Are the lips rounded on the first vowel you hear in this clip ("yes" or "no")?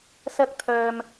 no